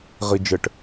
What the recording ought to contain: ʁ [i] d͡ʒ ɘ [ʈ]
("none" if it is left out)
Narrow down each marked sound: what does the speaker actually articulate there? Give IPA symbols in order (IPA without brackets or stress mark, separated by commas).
i, ʈ